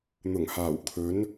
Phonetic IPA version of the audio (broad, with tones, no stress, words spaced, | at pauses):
n̪ʊ˨˩ŋhaː˨˩w kʰɵ˨˥n